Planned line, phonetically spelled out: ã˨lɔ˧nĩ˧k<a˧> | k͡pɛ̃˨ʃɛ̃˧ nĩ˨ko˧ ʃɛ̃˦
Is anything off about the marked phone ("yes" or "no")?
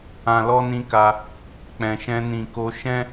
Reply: no